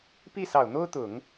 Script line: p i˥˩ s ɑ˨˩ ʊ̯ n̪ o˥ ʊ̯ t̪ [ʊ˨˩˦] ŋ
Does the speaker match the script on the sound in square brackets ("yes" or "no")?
yes